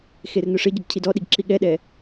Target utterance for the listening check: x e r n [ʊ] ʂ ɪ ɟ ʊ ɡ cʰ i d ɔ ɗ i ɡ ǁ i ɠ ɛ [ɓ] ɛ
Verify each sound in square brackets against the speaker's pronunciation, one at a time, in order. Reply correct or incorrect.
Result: correct, incorrect: ɗ

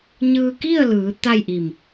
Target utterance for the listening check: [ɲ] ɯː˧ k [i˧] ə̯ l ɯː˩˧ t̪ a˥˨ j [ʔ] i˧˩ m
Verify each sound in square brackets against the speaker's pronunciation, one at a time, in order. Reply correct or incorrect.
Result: correct, incorrect: i˥˨, correct

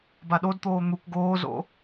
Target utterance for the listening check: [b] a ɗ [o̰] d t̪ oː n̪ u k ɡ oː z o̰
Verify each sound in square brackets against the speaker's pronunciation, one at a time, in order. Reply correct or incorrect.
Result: correct, incorrect: o

